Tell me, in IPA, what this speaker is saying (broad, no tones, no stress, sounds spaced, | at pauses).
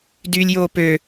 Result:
d yː lʲ j oː p ø